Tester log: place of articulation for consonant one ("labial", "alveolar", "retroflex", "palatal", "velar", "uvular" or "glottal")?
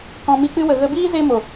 velar